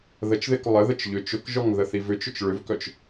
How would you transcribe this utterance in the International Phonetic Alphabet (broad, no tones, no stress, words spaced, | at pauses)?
ðət͡ʃðɪk lˠəðət͡ʃ ʎʏ t͡ʃʊkʒɔŋ ðəθivʏt͡ʃʊt͡ʃ ɭʏvkœt͡ʃ